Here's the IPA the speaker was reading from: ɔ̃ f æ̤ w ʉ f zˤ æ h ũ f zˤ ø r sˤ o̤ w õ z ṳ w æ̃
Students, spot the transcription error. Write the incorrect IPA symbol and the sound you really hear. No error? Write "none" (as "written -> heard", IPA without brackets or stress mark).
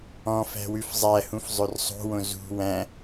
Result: none